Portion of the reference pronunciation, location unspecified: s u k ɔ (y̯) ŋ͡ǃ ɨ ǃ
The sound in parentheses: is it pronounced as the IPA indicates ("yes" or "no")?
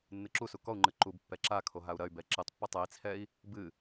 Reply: no